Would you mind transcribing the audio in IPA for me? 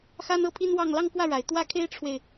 x a˥ n ɤ˥ pʰ i˥ n w ɑ˥˧ ŋ l ɑ˥˧ ŋ k w ä˥˩ ɻ a˨˩ ɪ̯ t̪ w ä˥ kʰ e˥ ɪ̯ ʈ͡ʂʰ w e˨ ɪ̯

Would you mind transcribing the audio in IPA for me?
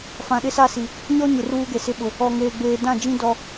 f ã˨ ɗ ɪ˦ s a˦ s i˨ | ɲ ɔ˦ ɲ ɪ˨ r uː˦ ɡ e˨ s ɪ˦ ɓ ʊ˨ | ɔ˨ ŋ eː˨ ɡ͡b eː˨ d ã˦˨ d͡ʒ ĩ˦ d ɔ˦

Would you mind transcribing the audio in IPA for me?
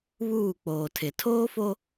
β uː˦˨ k͡p oː˨ tʰ ɪ˨ tʰ oː˦ f o˦

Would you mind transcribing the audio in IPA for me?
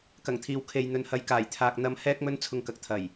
k ɐ˨˩ ŋ t̪ʰ iː˨ w kʰ e˨ j n̪ ɵ˨ n h ɐ˨˧ j k aː˨˩ j t̪ʰ aː˨ k̚ n̪ ɐ˧ m h ɛː˥ k̚ m ɵ˥ n t͡sʰ ʊ˧ ŋ k ɐ˨ k̚ t̪ʰ ɐ˨˩ j

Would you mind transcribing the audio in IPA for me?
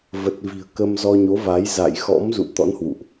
v ə˨˩ t̚ v i̤˨˩ ə̯ k ə˧ m z ɔ˧ ɲ o˨˦ v a˨˦ j z a̰˧˨ j x ɔ̰˧˥ m z ṵ˧˨ t̪ ɔ̰˧˥ n h w ṵ˧˨ ʔ

